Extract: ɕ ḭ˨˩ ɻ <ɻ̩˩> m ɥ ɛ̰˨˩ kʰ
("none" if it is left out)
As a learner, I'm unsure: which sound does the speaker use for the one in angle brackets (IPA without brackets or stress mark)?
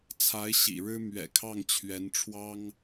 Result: ɻ̩˥